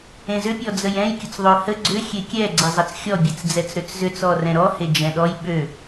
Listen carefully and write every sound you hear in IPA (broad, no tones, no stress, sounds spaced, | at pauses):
ẽ z ʏ pʲ ɔ d͡z ə j ɛ̃ j kʲ ʊ t͡s ðˤ ø h ə ɡ͡ǀ ʏ xʲ e kʲ ɛ ɡ͡ǀ ɛ zˤ ɐ t͡s xʲ ɔ bʲ e t͡s d͡z ɛ t͡s ɾ ø t͡s z ʏ t͡s ɔ r ɛ̃ ɾ ɔ h e d͡ʒ ɛ̃ ɗ ɔ j ɓ ø